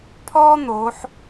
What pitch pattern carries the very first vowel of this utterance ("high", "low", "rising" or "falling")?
high